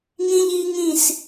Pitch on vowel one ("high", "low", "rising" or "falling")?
high